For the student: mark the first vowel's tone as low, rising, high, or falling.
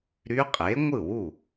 rising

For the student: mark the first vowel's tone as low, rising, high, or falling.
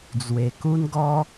low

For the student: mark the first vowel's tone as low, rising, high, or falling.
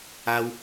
high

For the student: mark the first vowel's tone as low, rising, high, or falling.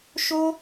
high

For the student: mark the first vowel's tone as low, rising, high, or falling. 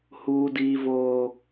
high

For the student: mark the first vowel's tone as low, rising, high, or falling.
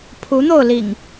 rising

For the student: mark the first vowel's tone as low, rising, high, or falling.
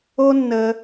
high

